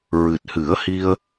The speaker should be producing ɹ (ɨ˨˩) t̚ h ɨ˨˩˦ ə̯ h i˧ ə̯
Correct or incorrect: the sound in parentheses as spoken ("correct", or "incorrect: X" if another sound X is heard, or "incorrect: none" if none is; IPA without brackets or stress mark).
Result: correct